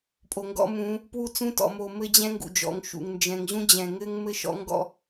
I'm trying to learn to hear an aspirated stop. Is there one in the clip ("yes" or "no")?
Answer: no